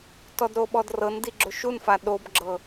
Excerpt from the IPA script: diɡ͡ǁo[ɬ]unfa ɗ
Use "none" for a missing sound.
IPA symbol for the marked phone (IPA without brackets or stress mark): ʃ